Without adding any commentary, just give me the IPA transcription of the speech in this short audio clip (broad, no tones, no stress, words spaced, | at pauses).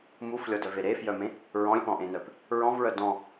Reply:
muflʲɔdœve ɾefjœmẽ | ɹɔ̃lʲpɔ̃ʔẽnœp | ɹɔ̃vɹœ dɔ̃